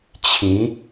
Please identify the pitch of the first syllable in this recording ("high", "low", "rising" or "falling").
rising